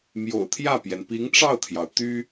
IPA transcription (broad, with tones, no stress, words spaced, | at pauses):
mjo̰˨˩ʊ̯t̪ʰjä˥˩pjɛ˩n pi˧˥ŋʈ͡ʂɑ˥˩ʊ̯t̪ʰjɑ˩ʊ̯ t̪y˥